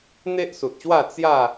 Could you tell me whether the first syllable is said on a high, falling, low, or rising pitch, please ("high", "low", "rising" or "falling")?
high